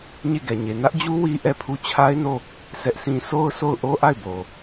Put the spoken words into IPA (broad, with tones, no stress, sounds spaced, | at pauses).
ɲ e˦˨ ɡ ɛ˨ ɲ e˨ n ä˦ ʔ d͡ʑ u˦ w i˦ ʔ ɛ˦˨ pʰ u˦˨ t͡ɕʰ a˦ ɪ̯ n o˦˨ | sʰ ɛ˦ ʔ sʰ ĩ˦ sʰ o˦ ʊ̯ sʰ o˦˨ ʊ̯ ʔ o˦ ʔ a˦˨ ɪ̯ b o˨